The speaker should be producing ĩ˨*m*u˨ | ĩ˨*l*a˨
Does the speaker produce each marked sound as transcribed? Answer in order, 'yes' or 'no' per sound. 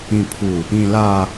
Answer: no, yes

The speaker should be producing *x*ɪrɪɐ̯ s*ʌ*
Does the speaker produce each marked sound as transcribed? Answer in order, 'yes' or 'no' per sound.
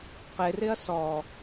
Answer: no, no

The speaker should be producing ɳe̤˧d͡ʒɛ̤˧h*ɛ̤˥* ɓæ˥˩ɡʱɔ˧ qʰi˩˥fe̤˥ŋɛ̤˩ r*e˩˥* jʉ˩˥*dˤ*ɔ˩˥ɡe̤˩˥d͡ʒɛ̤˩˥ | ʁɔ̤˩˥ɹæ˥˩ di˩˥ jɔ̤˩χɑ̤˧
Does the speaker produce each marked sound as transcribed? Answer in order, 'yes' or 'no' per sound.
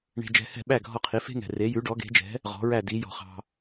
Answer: no, yes, no

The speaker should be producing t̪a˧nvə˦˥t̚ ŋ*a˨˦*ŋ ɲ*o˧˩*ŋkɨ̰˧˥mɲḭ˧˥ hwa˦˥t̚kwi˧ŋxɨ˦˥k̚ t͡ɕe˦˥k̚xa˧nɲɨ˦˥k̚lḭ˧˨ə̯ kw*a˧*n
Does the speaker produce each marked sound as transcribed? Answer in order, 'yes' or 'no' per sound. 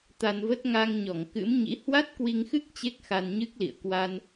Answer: no, no, yes

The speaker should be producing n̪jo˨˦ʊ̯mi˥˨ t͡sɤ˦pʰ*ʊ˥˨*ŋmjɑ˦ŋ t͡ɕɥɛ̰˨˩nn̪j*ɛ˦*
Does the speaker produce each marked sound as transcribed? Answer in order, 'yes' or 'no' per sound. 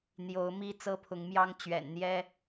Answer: no, yes

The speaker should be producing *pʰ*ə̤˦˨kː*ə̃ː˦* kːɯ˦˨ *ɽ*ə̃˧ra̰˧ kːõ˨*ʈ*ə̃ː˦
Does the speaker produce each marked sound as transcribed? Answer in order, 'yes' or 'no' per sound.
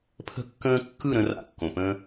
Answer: yes, yes, no, no

